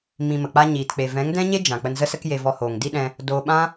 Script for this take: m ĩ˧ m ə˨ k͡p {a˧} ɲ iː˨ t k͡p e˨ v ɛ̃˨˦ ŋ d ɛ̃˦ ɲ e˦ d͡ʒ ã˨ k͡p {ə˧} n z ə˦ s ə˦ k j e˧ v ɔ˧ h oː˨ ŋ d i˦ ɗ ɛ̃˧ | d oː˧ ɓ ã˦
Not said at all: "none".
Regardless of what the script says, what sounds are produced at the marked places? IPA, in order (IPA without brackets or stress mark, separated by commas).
a˦, ə˧